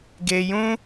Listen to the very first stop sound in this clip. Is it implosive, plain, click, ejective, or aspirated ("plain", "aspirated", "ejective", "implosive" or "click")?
plain